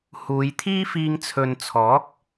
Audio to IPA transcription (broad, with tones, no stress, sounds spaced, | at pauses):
h uː˨˧ j t̪ʰ iː˥ f iː˧ ŋ t͡sʰ ɵ˨ n t͡sʰ ɔː˨˥ k̚